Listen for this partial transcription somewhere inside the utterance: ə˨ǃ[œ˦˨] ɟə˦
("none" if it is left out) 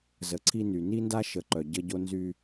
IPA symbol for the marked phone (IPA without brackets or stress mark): œ˨